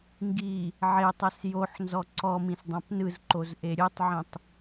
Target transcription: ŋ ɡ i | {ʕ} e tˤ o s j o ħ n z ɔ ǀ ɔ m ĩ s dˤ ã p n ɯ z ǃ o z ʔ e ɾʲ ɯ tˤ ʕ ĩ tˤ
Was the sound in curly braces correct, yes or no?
yes